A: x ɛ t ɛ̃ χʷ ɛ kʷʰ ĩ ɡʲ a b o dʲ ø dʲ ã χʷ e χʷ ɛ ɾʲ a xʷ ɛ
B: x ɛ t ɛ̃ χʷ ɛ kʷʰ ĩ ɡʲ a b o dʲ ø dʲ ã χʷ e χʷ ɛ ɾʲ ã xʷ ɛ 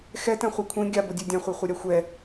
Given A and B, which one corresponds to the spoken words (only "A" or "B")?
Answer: A